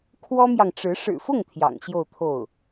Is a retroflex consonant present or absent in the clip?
present